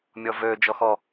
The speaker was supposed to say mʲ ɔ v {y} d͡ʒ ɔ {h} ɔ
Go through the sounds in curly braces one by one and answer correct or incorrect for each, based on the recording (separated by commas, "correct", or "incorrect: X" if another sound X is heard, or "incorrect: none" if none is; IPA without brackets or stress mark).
incorrect: ø, incorrect: x